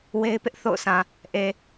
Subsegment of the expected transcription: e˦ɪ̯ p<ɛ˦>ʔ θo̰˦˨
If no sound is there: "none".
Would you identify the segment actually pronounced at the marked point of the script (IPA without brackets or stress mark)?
ɪ˦